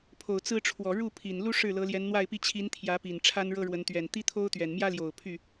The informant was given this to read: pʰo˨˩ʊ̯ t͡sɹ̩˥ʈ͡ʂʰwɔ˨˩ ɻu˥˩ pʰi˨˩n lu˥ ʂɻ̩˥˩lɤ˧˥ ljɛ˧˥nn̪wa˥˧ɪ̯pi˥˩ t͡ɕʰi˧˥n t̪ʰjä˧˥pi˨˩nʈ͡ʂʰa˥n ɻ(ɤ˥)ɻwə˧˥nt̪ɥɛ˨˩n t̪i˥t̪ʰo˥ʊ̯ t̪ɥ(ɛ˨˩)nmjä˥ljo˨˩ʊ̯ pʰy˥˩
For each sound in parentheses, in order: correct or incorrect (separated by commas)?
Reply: correct, correct